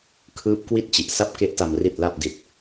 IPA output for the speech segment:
kʰ ɯː˦˥ p̚ k w i˥˩ t̚ t͡ɕ i˨˩ ʔ s a˥˩ p̚ k e˦˥ ʔ t a˧ m r i˨˩ t̚ l a˨˩ p̚ d i˨˩ t̚

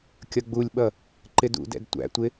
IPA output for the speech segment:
kʲ ʌ ɡ͡b u lʲ ɓ ʌ | ǃ ɪ d ṵ d ɛ̰ d tʷ æ̰ tʷ ɪ

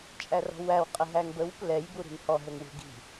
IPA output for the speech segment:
t͡ʃʼ æ r ɔ̤ w æ w qʼ ə ɦ æ ŋ b ə w p l ɛ j b u ɾ i̤ n h ɔ ɦ ə˞ ŋ w ṳ ɡ i̤

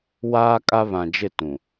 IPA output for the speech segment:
w aː˦ kʼ a˦ β ã˨ d͡ʒ ɪ˦˨ t ũ˨

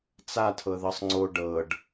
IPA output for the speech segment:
t͡s a tʰ ɤ ð ɤ sˤ ŋ͡ǀ o ɖ ɤ ɖ

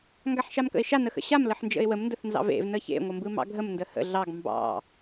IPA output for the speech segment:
ŋ ɡ a ħ ʃ a m k ə̰ ɪ̯ ʃ a n ə x ə̰ ɕ a m l ə ħ n d͡ʒ ə̰ ɪ̯ w ə m n d ə θ n z ɑ̰ v ḛ v n ə ç ḛ ŋʷ ə m b ɯ m ɑ̰ ɡʱ ə m n d ə h ə̰ ɮ ɑ ɡ m b ɑ̰

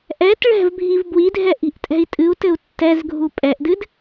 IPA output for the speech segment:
ʔ ɛ t ɭ ɛ̤ v bʱ i v b w i dʱ ɛ ʔ i̤ ʔ tʼ ɛ̤ i̯ tʼ ɨ u̯ t ɘ u̯ tː ɛ z ɡʱ u pʼ ɛ ʔ d ɨ d

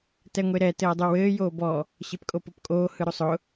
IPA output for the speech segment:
t ɛ ŋʷ e ɾ ɛ t ɘː dˤ u w ɘː j oː b ɔ | ɕ e p kʼ o p o p kʼ oː h ɯ ɾ o sˤ ʊ

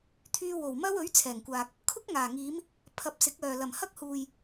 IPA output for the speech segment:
t̪ʰ yː˧ w o˨˩ w m ɐ˥ w ɵ˨˥ ɥ t͡sʰ ɛː˨˩ ŋ kʷ aː˨ k̚ | kʰ ʊ˥ k̚ ŋ aː˨˩ ŋ iː˨˧ m | pʰ ɐ˨˥ p̚ s ɪ˨˥ k̚ œː˨ l ɐ˨˩ m h ɐ˥ k̚ h uː˨ j

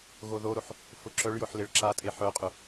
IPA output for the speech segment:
ɣ o ð o ɾ o ħ | f ʊ ǁ œ ɭ j ʊ ħ l ɪ ɭ ǁ a tʼ e ħ œ qʼ ʊ

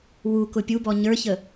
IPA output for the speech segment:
w u k ʊ pʲ u b ɔ ɲ ə˞ ç ə

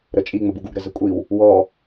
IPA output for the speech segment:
ɾ ə t͡ʃʼ i ŋ͡m ə b u ɡ u ɡ ɾ ə z ə kʷʼ i w | w ɔ

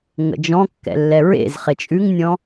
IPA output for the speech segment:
ŋ ə̰ d͡ʒ ɔ̃ kː ɛ̰ lː ɛ ɹ ḛ z χ e t͡ʃʼ ʉ ŋ nʲ ɔ̃

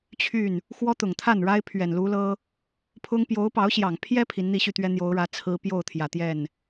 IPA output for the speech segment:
t͡ɕʰ y˥˩ n | x w ɔ˥ t̪ ʊ˨˩ ŋ t̪ʰ a˥˩ n ɻ a˥ ɪ̯ pʰ ɥ ɛ˨˩ n l u˧˥ l ɤ˥ | pʰ ʊ˥ ŋ p j o˧˥ ʊ̯ p ɑ˧˥ ʊ̯ ɕ j ɑ˨˩ ŋ pʰ j ɛ˥ pʰ i˧˥ n n̪ i˥˧ ɕ y˥˩ t̪ ɥ ɛ˥ n̪ j o˧˥ ʊ̯ ɻ ä˧˥ t͡sʰ ɹ̩˥ p j o˥˩ ʊ̯ t̪ʰ j ä˨˩ t̪ j ɛ˥˩ n

